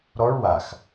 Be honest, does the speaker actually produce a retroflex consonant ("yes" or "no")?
yes